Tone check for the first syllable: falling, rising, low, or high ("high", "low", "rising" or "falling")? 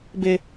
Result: high